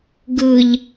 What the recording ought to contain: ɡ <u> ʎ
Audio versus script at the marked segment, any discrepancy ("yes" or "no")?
yes